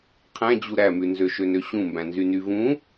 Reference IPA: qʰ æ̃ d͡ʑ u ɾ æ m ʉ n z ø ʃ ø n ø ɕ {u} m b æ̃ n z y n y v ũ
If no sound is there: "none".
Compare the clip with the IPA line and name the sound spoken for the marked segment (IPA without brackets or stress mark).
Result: ũ